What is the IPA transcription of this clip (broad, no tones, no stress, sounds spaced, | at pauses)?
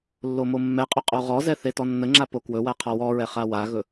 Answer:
lː o m o mː ɛ qʼ ɵ qʼ o ʁ ɔ z ɛ θ e t ɔ nː ə ŋ͡ǁ a p o k w ɵ w a qʰ ɔ w ɔ ɹ ɛ χ a w a ɣ ɵ